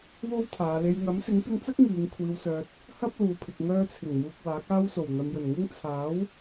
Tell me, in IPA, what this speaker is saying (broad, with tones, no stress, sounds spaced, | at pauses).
w o˥ w t̪ʰ aː˨˧ l e˨ j ŋ ɐ˨˥ m s ɪ˨˥ ŋ p ɪ˧ ŋ t͡s ɐ˥ k̚ ŋ iː˨˧ ŋ kʷʰ iː˨ w s œː˨ t̚ | h ɐ˥ p̚ l uː˨ pʰ ɪ˨ k̚ ŋ œː˧ t͡sʰ ɪ˨˩ ŋ m uː˨ k̚ w aː˨˥ k̚ aː˥ w s o˨˩ w n̪ ɐ˨ m j ɵ˨˩ n ŋ ɪ˥ ŋ t͡sʰ aː˨˥ w